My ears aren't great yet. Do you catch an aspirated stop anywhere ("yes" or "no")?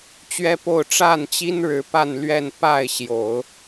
no